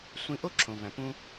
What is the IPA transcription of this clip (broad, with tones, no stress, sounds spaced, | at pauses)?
sʷ ĩ˧ ʔ o˥ ǁʰ õ˩ v æ̃˩ p ũ˧